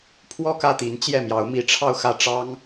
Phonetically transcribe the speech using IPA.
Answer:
pʰ w ɔ˥˧ k ä˥˩ t̪ i˧˥ n t͡ɕ j ɛ˥˩ m j ɑ˧˥ ʊ̯ m i˧˥ ʈ͡ʂʰ ɑ˥˧ ʊ̯ x ä˥˩ ʈ͡ʂ ɑ˥ ŋ

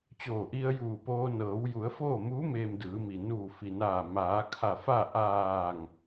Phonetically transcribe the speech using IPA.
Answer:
t͡ɕ oː˧˩ ʔ i˧ ə̯ j uː˧˩ p oː˧ n ɤː˩˧ w j u˩˧ ə̯ f oː˥˨ m uː˧˥ m eː˧ m d ɯː˩˧ m i˩ n uː˧˩ f i˩ n aː˧˩ m aː˩˧ kʰ a˧˩ f a˥˨ ʔ aː˧˩ ŋ

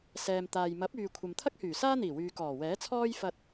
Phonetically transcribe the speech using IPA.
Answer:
s ɛː˨ m t̪ aː˨ j m ɐ˨˥ p̚ yː˨ kʷʰ ɐ˨ m t̪ʰ ɐ˥ k̚ h yː˨˩ s aː˥ n̪ iː˨˩ w yː˨ k ɔː˨˩ w ɛː˨˥ t͡sʰ ɔː˥ j f ɐ˧ t̚

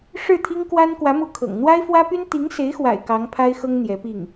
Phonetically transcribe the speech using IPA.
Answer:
ʂ ɻ̩˥˩ t̪ʰ i˥ ŋ k w a˥ n k w ä˧˥ m u˧˥ kʰ ɤ̰˨˩ ŋ n̪ w a˥ ɪ̯ f w ä˥ p y˥ n t̪ i˧˥ ŋ s e˧˥ ɪ̯ x w a̰˨˩ ɪ̯ k ɑ˧˥ ŋ pʰ a˥ ɪ̯ x ɤ˥ ŋ n̪ j ɛ˧˥ p i˥˩ ŋ

